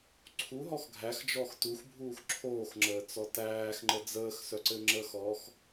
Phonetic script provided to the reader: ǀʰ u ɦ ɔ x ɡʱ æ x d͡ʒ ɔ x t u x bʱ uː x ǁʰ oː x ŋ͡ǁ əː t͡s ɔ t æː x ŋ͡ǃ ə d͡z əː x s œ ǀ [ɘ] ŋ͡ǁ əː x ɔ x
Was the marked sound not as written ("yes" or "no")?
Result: no